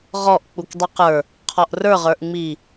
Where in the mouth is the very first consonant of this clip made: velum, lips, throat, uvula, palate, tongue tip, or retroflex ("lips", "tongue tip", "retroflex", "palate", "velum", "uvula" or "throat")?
uvula